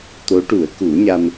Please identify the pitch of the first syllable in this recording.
rising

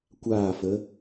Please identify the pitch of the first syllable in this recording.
falling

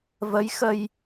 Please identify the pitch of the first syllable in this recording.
rising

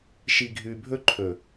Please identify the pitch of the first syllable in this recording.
low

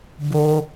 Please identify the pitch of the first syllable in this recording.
low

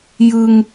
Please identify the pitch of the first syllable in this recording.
low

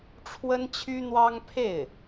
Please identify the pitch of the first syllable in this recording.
high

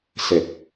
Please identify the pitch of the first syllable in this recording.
low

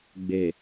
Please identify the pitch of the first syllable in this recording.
low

